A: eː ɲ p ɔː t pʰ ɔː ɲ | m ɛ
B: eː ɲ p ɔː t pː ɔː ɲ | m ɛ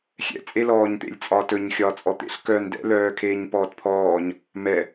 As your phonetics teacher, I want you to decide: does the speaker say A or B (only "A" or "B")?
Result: A